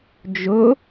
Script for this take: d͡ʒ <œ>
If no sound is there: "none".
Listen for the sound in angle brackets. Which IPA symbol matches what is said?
ɵ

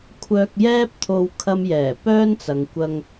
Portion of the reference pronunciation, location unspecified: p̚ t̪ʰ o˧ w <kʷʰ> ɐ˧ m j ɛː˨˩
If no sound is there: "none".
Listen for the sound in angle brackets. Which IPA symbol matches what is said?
kʰ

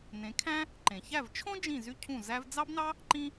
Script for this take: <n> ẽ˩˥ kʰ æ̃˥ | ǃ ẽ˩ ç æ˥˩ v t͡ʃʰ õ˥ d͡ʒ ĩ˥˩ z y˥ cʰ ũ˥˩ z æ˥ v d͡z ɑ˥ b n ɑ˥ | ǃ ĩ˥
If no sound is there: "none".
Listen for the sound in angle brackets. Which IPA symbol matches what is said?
n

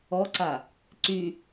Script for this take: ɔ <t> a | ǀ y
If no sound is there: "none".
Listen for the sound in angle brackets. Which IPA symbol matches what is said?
ǀ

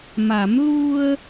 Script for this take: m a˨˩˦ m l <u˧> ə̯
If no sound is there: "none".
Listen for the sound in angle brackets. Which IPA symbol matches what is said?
u˧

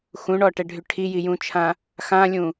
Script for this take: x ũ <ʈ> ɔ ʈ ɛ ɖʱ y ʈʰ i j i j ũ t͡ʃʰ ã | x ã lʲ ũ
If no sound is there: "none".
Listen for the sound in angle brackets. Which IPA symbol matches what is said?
ɳ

